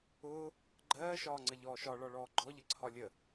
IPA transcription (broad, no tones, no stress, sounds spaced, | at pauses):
ʊː | ɡ͡ǃ ɜː ʃ ɒː ŋ͡ǀ ə ʎ ɔː ʃ ɒ ɭ ɒ ɭ ɔː ɡ͡ǃ ɔ ʎ ə ǀʰ ɒ lʲ ə